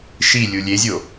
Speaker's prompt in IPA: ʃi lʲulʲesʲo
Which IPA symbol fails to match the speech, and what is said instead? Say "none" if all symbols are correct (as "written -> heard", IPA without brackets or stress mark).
sʲ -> zʲ